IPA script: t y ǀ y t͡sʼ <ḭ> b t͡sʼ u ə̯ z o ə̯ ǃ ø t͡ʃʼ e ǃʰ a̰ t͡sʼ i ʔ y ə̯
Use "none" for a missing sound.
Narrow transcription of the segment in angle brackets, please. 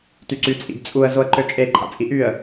ḭ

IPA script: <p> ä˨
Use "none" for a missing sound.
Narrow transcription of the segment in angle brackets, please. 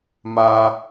m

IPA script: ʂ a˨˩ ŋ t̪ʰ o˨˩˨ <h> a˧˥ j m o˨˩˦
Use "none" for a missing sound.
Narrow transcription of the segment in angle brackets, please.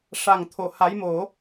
h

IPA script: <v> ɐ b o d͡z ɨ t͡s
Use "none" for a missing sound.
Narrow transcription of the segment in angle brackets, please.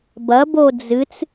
b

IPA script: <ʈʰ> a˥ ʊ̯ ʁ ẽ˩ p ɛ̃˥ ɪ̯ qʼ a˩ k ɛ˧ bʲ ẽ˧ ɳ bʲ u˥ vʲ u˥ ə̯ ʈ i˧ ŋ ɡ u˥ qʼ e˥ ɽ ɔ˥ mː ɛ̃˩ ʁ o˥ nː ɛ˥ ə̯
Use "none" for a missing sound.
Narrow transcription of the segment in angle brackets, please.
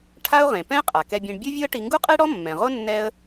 ʈʰ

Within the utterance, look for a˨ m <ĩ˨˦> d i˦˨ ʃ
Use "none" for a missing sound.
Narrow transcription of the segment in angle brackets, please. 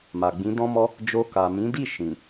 ĩ˨˦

